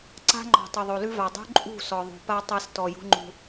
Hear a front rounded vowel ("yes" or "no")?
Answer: no